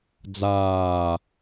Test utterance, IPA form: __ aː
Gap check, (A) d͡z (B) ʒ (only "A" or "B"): A